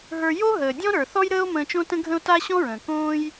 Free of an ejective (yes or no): yes